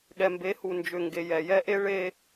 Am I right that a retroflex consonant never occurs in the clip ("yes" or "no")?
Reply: no